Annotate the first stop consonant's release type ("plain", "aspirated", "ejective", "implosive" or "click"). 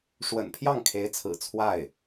aspirated